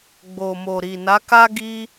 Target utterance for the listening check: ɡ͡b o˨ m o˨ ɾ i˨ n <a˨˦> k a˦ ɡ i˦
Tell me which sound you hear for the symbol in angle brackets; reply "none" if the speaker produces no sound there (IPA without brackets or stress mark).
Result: a˨˦